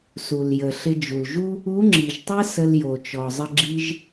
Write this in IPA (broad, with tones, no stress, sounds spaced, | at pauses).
s u˩ l j ə˩ ɬ ɪ˧ d͡ʒ u˩ l ʒ u˥ | u˧˥ ŋ͡ǁ i˩ ʒ tˤ ə˥ s ə˧ l j o˩ t͡ʃ ɔ˩ zˤ ə˧ ɡ͡ǁ i˧ ʒ